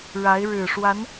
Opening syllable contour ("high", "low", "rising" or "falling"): rising